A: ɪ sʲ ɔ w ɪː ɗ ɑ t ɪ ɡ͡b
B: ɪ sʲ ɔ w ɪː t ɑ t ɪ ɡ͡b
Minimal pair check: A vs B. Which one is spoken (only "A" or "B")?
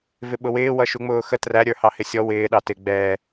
A